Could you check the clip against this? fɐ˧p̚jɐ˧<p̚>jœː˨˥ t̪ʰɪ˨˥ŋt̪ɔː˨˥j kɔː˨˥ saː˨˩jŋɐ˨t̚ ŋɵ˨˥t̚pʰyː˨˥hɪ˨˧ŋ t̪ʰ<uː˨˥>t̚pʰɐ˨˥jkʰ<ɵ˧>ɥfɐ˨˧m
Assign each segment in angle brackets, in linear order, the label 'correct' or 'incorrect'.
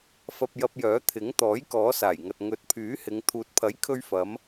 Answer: correct, correct, correct

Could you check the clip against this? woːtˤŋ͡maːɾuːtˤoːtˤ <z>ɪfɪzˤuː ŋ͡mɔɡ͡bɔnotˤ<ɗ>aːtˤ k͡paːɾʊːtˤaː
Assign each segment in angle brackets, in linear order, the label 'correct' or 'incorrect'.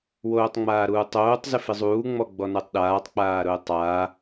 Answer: correct, correct

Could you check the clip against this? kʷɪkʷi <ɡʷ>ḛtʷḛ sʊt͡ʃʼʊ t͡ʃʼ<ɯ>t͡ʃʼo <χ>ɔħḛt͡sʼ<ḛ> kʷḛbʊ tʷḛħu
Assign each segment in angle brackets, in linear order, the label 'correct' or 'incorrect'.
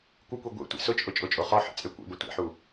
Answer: correct, incorrect: ʊ, correct, incorrect: e

